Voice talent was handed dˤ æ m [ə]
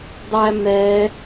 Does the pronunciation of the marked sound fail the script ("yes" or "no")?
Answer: yes